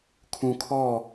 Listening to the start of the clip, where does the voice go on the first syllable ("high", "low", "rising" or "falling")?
low